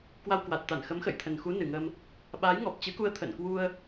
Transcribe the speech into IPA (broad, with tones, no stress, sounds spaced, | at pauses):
k w a˧ w k w a˨˩ t̚ t̪ a˧˩ n x ə˨˦ m x ə̰˧˨ j t̪ʰ ə˨˩ n x u˨˦ n ɨ˨˩ ŋ ə˧ m | ɓ aː˨˦ j ŋ ɔ˨˩ p̚ t͡ɕ ɨ˨˦ k u˧ ə̯ t̪ʰ ə̰˧˨ n k w u˧ ə̯